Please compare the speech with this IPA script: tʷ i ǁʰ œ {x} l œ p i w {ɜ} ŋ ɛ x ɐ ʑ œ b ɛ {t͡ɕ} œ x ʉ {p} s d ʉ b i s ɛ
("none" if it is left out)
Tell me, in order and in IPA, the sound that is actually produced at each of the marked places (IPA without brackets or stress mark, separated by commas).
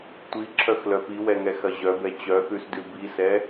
x, ɛ, t͡ɕ, none